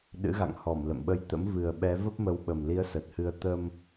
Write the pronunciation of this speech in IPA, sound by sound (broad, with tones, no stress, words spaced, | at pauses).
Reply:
ɗɨ̰˧˥ɣa̰˧˨ŋhɔ˧˩m lə̰˧˨mɓə˧jt̪ə̰˧˥m vɨ˨˩ə̯ɓɛ˨˦ və˦˥p̚mə˨˦wɓə˨˩mli˨˦ə̯ sə˨˩t̚hɨ˧ə̯ t̪ə˧m